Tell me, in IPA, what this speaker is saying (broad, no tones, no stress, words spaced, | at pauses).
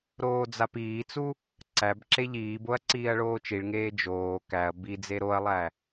ɾoːd͡zapiːt͡su | ǀæbǁe ʎiːboɐ̯ ǀiːɐ̯ɭoːt͡ʃiɭŋeː d͡ʒoː kæɐ̯ bid͡ze ɾoɐ̯lˠæ